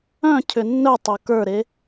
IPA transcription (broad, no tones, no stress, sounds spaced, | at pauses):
œ̃ cʰ ʏ nː œ tˤ o k ə˞ ɾ e